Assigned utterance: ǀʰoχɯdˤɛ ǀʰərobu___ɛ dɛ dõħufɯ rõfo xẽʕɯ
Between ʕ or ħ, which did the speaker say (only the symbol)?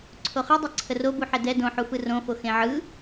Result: ħ